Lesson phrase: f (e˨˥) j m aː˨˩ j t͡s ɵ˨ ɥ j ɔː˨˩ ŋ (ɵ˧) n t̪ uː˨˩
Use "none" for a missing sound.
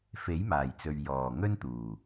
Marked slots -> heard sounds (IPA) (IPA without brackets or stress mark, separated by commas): e˨˥, ɵ˥